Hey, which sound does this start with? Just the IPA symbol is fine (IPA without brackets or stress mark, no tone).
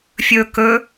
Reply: fʲ